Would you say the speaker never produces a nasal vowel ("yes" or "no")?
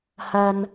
yes